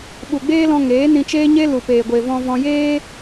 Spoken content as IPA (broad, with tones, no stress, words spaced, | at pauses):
ɓu˨ɡ͡beː˦lɔ̃˧ ŋeː˨˦nĩ˧t͡ʃeː˦ɲe˦ lu˨peː˨ɡʷe˨ vɔ̃˧vɔ̃˧ jeː˦